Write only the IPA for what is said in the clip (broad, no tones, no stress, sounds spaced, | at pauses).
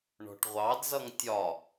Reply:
ɳ ɔ̤ ʈ ʁʷ ɑ d z ʌ ŋ tʲ ɒ